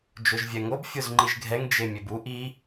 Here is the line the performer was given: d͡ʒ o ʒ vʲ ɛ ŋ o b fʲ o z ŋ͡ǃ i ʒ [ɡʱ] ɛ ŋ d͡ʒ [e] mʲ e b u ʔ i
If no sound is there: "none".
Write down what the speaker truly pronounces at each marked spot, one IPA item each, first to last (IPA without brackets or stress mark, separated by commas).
ɡʱ, e